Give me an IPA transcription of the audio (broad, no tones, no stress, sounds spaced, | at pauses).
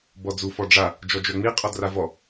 b ɔ d͡z u f ɔ ɖ͡ʐ a | d͡ʒ ɔ d͡ʒ œ ŋ͡m i qʼ ɔ d r a v ɔ